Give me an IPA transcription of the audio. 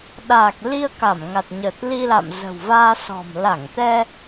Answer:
ɗ aː˨˩ k̚ l i˧ ə̯ k a˧˩ m ŋ a˨˩ t̚ ɲ əː˨˩ t̚ l i˧ l a̰˧˨ m z ə̤˨˩ w v aː˧ s ɔ̤˨˩ m l a˧˩ ŋ t̪ ɛ˧

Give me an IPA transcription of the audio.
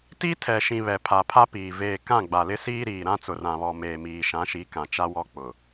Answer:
t i˦ tʰ ɛ˨ ʃ ĩ˨ β ɛ˨ pʰ a˨ pʰ a˦ p iː˨ v eː˨ k ã˦˨ ɡ͡b a˨ l ɪ˦ s iː˦ ɾ iː˨ ɾ ã˦ t͡s ʊ˨ r ã˨ β ɔ˨ m eː˨ m iː˨ ʃ ã˨˦ ʃ i˨˦ k ã˨ t͡ʃ a˦ w ɔ˦ k͡p ʊ˨

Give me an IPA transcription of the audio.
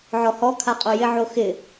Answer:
ʕ ɔ h ɔ kʰ a qʼ o j ɪ ʕ o x ɪ

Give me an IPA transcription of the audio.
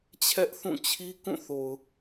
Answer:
t͡ɕʰ ɛ˦ ʔ θ ũ˦˨ t͡ɕʰ i˦ k ũ˦˨ θ o˨ ʊ̯

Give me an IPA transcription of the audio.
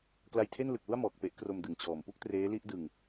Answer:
k l a˧ j tʰ e˥˩ n l ɯ˨˩ k̚ l u˥˩ a̯ m ɔː˨˩ k̚ p e˦˥ ʔ k r o˧ m d ɯ˩˦ ŋ t͡ɕ ɔː˨˩ m p u˥˩ k̚ t r eː˦˥ l i˥˩ ʔ d ɯ˧ ŋ

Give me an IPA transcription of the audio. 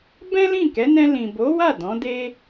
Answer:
b ɛ̃˦ l ĩ˦˨ k ɛ˨˦ n ɛ̃˧ l ĩ˨ b o˨˦ w a˦˨ d ɔ̃˨˦ d e˦

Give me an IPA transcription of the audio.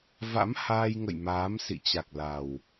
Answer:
v a̰˧˥ m h aː˧ j ŋ ə̰˧˨ j m aː˨˦ m s ḭ˧˨ t͡ɕ a˨˩ k̚ l a˨˩ w

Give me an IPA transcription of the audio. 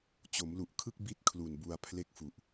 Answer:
t͡ɕ o˩˦ m l u˨˩ ʔ kʰ ɯ˥˩ k̚ b i˥˩ t̚ kʰ l u˨˩ n b u˧ a̯ pʰ l e˥˩ k̚ f u˨˩ ʔ

